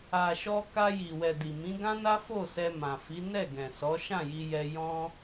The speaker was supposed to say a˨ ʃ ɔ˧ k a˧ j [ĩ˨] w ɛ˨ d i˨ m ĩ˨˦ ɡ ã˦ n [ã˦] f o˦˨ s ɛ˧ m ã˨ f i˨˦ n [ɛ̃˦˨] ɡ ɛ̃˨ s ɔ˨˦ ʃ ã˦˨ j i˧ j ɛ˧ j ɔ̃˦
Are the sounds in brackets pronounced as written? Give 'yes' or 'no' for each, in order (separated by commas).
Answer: no, no, no